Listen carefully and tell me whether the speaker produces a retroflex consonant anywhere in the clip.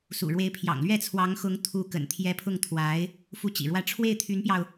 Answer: yes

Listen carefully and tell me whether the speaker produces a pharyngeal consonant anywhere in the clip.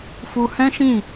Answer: no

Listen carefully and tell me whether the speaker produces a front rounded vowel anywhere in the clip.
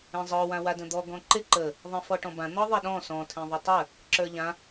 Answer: no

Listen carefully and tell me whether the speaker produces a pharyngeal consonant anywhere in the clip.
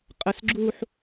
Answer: yes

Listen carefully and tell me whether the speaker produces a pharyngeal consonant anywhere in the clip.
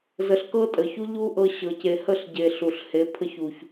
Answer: no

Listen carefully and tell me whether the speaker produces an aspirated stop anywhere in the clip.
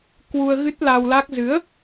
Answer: no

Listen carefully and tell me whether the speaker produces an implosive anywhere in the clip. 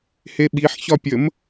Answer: yes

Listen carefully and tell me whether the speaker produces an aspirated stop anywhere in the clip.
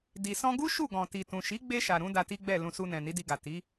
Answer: no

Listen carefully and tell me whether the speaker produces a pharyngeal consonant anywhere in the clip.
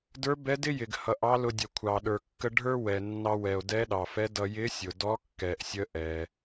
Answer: no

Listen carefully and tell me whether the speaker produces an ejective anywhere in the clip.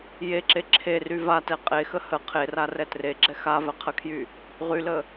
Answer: yes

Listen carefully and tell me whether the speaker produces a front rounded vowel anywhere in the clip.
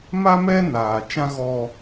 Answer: no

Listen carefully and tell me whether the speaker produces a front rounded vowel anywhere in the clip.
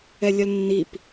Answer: yes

